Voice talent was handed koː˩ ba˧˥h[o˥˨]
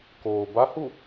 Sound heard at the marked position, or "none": u˥˨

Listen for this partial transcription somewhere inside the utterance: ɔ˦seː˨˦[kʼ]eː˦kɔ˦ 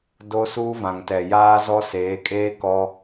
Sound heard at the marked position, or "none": kʼ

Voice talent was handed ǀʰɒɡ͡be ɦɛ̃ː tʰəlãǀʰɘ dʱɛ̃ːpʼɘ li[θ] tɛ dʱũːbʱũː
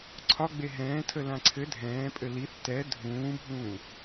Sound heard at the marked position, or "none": θ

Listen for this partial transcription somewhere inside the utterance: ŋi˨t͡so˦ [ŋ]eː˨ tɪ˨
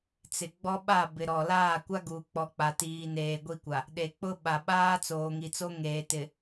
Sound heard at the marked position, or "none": ŋ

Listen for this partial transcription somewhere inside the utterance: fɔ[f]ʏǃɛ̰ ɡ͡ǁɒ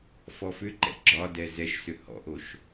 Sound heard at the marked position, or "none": f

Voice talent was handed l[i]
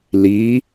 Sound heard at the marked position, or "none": i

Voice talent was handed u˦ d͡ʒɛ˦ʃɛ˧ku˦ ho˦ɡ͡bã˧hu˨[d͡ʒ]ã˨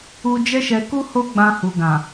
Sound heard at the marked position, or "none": ɡ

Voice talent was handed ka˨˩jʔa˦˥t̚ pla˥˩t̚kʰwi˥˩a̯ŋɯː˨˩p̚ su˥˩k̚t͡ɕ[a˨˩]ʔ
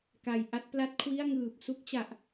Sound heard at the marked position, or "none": a˨˩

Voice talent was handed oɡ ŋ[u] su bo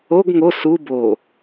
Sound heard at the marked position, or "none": o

